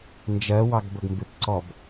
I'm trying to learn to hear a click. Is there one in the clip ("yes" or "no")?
yes